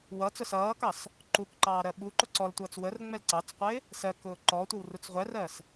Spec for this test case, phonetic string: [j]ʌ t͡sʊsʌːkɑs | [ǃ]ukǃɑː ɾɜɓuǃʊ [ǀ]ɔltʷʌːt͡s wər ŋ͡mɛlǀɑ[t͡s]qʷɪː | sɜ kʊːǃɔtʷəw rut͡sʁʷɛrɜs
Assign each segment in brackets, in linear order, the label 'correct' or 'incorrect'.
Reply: incorrect, correct, correct, correct

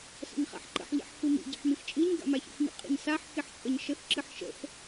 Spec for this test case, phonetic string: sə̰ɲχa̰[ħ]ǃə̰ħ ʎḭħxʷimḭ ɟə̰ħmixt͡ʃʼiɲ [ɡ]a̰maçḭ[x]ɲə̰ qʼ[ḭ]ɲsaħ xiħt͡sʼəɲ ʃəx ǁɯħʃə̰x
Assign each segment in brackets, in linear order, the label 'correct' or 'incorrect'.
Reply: correct, correct, correct, correct

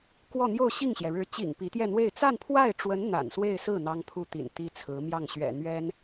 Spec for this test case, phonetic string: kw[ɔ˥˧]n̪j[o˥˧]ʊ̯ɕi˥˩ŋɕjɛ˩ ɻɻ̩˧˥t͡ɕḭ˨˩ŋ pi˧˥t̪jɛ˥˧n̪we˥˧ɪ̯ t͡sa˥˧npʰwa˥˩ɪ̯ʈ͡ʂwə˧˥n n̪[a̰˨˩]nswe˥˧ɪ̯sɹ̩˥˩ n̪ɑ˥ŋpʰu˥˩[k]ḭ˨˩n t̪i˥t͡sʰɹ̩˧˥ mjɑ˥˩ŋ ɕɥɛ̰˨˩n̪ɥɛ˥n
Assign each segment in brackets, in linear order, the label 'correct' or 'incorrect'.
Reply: correct, correct, correct, incorrect

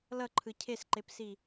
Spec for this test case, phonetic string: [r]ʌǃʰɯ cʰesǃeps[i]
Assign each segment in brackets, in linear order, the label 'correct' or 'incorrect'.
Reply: incorrect, correct

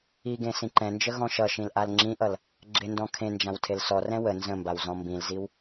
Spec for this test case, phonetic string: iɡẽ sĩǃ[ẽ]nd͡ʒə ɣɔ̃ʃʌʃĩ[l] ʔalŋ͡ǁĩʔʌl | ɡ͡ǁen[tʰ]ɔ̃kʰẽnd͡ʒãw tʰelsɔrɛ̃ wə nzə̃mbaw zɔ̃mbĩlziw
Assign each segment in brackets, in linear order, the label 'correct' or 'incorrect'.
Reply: incorrect, correct, incorrect

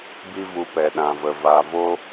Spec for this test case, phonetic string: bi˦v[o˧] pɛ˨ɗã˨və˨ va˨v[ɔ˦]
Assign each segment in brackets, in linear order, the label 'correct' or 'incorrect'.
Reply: incorrect, incorrect

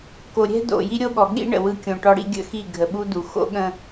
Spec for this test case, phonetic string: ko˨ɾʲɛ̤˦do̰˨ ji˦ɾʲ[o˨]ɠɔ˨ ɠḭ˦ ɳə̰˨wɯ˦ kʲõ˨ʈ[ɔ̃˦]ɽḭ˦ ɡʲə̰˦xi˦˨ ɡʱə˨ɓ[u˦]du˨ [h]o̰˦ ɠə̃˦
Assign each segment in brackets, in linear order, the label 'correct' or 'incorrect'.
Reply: incorrect, incorrect, correct, incorrect

